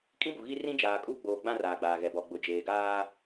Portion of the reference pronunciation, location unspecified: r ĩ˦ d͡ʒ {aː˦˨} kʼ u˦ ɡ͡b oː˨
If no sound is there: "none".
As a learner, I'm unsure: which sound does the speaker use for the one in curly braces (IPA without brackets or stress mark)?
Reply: aː˨